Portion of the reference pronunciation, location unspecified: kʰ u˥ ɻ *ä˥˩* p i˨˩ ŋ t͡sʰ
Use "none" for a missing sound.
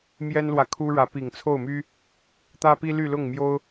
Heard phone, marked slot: ä˧˥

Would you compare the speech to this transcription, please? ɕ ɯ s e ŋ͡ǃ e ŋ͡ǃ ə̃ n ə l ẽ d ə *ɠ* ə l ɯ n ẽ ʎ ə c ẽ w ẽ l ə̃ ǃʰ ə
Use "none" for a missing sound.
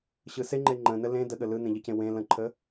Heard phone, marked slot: ɠ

